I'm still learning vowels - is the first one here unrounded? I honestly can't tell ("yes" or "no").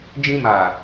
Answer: yes